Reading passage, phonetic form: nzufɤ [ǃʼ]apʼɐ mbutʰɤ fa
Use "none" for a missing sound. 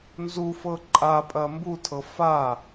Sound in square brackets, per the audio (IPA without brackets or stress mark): ǃʼ